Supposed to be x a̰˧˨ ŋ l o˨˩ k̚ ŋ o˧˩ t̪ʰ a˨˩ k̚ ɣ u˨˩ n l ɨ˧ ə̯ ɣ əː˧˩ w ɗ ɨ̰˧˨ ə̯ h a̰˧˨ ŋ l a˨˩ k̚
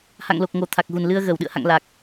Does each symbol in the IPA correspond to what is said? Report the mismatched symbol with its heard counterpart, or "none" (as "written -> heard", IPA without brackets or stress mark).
x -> h